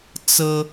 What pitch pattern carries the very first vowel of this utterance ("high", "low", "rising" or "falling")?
high